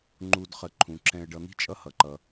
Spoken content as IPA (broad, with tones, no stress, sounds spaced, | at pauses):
ŋ͡ǃ u˨ d χ ə˨ ǃʰ ũ˩ ǁ ɛ̃˨ ə̯ ɖ ʌ˨ n̪ i̤˥ t͡ʃʼ ʌ˦ h ʌ˩ ǃ ʌ˨